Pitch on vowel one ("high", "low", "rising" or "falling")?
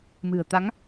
low